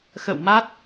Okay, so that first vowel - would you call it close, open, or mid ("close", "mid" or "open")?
mid